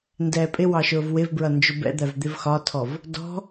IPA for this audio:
n d ɛː pʼ ɪ w ɑ ʃ ʊː v w ɪ v b ɹ ʌ n d͡ʒ ʊ b ɛ̰ d̪ æ v d̪ ɪ v x ɒ tʰ ɔ v | d ɔ̤

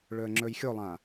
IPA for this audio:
ɭ ɵ ə̯ ŋ͡ǁ ɵ j xʲ o lˠ ã

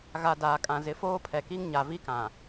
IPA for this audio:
ɣ a˨ d aː˨ kʼ ã˨ z ɪ˨ f oː˦ pʰ ɛ˨ k i˦ ŋ ɲ a˨ v i˦ k ã˨

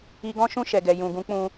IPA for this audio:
i˧ ɡ ɔ̃˦ ʃ ũ˦˨ ʃ ɛ˨ ɡ ɛ˨ j ũ˨ ɡ ũ˨˦ k͡p ũ˧

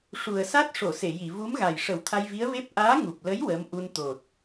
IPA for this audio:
ʂ u˨˩ ə̯ s a˦˥ t̚ ʂ o˨˩˨ s e˨˩˨ j i˨˩˨ v u˧˥ m ɣ a˨˩ j ʂ ə˨˩˦ w t̪ʰ a˧ j v i˧˥ ə̯ v e˦˥ p̚ ʔ aː˧˥ ŋ u˨˩ p̚ l ə˧˥ j w əː˧˥ m ʔ u˧ n t̪ o˨˩ t̚

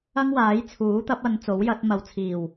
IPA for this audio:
ɐ˥ ŋ w aː˨˥ j t͡sʰ uː˨˥ t̪ ɐ˨˥ p̚ ɐ˨˧ n t͡s o˨˥ w j ɐ˨˥ t̚ m ɐ˨ w t͡sʰ iː˨˩ w

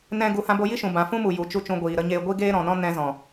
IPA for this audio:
n ɛ̃˦ ɡ u˧ h ã˧ b o˧ j i˦ ʃ ũ˨ b ã˨ f ũ˦ m u˨ j u˨ t͡ʃ u˧ t͡ʃ ũ˧ ɡʷ iː˨ ɾ ə˦ ɲ eː˦ ɡʷ i˦ ɡ eː˦ ɾ ɔ̃˨ n ɔ̃˦ n ɛ̃˧ z ɔ̃˨

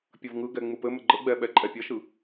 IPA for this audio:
pʲ ɐ v ŋ ɯ ɡ ɛ ŋ͡m ɯ p ɘ m ɘ ɡ͡ǃ ə ɡ͡b ɛ ɓ ɛ ǃʼ ɛ pʲ ɐ ʃ ɯ

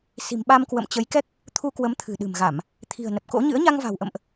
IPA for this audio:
s i̤˨˩ m ɓ a˧ m k w ə̰˧˨ m t͡ɕ ə˨˦ j k ɛ˦˥ k̚ | t̪ʰ u˧ k w ə˨˦ m t̪ʰ ɨ̤˨˩ ɗ ɨ̤˨˩ m ɣ a˧˩˨ m | t̪ʰ i̤˨˩ ə̯ n ə˨˩ p̚ k o̰˧˥ ɲ ɨ̰˧˥ ə̯ ɲ a˧ ŋ v a̤˨˩ w ʔ ə̰˧˨ m ʔ

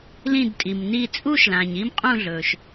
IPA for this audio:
l ĩ˧˩ d tʼ i˩ m n i˧˩ t͡sʼ u˥˨ ʃ l ã˩ ɲ i˥˨ m qʼ ũ˥˨ ɮ ɵː˩ ʃ

